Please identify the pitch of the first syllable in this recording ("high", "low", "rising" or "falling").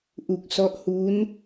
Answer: low